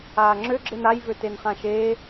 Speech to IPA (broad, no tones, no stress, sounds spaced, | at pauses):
aː ŋ͡ǁ ø ɡ͡ǁ e n a j v ø t e n χ ã ʃ eː